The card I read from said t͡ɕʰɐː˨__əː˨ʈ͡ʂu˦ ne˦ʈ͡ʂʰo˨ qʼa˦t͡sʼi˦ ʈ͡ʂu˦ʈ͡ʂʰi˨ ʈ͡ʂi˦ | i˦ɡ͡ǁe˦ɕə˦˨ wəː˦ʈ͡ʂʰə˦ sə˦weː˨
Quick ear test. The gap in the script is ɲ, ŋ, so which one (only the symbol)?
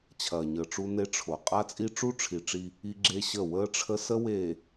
ɲ